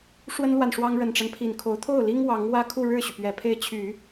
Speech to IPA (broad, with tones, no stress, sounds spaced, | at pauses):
ʂ w ə˥ n l w a˨ n ʂ w ɑ˥ ŋ ɻ ə˨˩ n ʈ͡ʂ a˦ n pʰ i˨˩ n kʰ o˧˥ ʊ̯ t̪ʰ o˥˩ ʊ̯ l i˥ ŋ w ɑ˧˥ ŋ w ä˥ kʰ u˥˧ ɻ ɻ̩˥˩ ɕ y˩ p ɥ ɛ˨˩ pʰ e˥˩ ɪ̯ t͡ɕʰ y˨˩˦